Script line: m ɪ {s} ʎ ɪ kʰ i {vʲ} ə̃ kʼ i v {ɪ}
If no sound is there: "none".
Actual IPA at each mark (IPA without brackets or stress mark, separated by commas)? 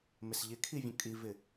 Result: s, vʲ, ɪ